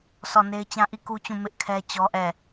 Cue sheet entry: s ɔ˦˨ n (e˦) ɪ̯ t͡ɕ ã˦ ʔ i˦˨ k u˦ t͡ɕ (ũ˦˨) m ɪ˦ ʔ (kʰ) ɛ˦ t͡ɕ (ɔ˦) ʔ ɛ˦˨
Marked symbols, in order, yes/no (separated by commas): yes, yes, yes, yes